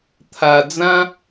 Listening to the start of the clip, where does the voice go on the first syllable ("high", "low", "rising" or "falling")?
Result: low